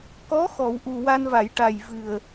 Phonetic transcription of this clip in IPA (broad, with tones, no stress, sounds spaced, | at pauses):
k ɔ˧˥ x ɔ˨˩˨ w ʔ u˨˩ w a˧ n v a˨˩˨ j ʈ a˨˩ j v ɨ˨˩ ə̯